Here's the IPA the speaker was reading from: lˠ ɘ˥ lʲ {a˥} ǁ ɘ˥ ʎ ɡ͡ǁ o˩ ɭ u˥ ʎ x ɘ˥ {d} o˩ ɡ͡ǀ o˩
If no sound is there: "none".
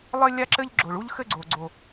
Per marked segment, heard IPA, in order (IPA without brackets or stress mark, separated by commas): a˥, ɡ͡ǀ